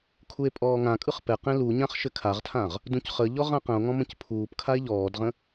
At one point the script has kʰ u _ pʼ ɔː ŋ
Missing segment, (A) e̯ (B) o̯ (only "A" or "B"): A